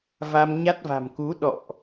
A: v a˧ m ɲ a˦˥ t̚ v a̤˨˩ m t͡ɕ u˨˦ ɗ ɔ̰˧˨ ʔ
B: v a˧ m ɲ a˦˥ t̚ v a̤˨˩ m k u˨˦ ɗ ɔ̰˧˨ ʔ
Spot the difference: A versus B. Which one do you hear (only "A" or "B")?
B